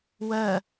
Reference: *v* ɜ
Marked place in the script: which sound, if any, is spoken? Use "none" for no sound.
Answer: w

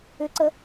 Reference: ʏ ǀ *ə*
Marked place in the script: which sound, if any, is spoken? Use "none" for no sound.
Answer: ə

